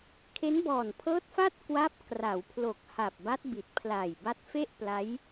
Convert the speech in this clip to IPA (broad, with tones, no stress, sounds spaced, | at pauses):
kʰ e˦˥ n b ɔː˨˩ n pʰ ɤː˦˥ t̚ f a˥˩ t̚ k w a˦˥ p̚ k r a˩˦ w pʰ l o˨˩ k̚ h a˨˩ p̚ b a˦˥ t̚ b i˨˩ t̚ pʰ l aː˨˩ j b a˦˥ t̚ f e˥˩ ʔ p l a˦˥ j